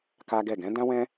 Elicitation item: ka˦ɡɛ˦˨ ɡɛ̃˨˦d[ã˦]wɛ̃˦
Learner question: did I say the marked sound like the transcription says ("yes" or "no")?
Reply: yes